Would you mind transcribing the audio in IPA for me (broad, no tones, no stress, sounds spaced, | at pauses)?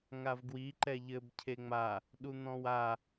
ŋ a v ɡ w i ǃ ɛ ʎ ɘ b cʰ e ŋ͡m a | ɗ u n̪ ɔ̃ w a